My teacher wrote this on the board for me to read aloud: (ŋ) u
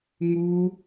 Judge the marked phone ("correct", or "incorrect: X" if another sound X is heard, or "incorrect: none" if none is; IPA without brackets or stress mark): correct